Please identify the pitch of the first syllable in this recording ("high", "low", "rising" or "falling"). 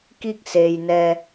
falling